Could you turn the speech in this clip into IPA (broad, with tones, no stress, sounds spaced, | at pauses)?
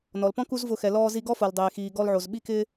n ɔ˩ l p ɔ̃˥ k u˥ z v ʊː˧ x ɛ˩ l ɔː˧ z i˧ ɡ ɔ˥ f o˩ l dˤ eː˩ x iː˩ ɡ ɔ˧ l ʕ o˩ z ɓ i˥ k ɪ˥